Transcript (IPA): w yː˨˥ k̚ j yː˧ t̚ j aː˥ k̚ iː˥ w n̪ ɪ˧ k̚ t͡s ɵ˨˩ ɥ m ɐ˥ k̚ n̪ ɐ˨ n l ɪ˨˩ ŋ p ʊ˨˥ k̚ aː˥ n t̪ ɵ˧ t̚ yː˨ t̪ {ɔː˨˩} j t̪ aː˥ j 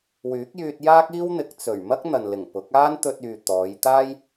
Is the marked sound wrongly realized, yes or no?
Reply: yes